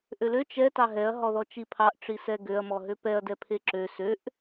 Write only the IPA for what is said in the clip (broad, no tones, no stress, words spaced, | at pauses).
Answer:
ʔølø t͡ʃɛ tɑɦɛɐ̯ ɦɔðɔt͡ʃipʰɑʔ ʈ͡ʂisɛɡøɐ̯ mɔɦøpɛɐ̯ dɛpʰeǁø søʔ